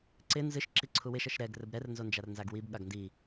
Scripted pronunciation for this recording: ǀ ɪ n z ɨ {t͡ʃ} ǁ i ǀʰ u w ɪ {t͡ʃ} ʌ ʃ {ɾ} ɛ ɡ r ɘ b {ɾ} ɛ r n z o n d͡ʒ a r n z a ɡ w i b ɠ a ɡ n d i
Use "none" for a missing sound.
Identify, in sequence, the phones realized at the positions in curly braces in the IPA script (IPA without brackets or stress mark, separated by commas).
ʃ, ʃ, ɾ, ɾ